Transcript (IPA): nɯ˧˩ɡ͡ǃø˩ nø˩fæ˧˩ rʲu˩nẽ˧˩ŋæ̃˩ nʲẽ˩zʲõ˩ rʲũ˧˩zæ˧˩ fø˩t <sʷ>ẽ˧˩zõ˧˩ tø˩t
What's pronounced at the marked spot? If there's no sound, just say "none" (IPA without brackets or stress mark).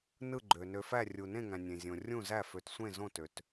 sʷ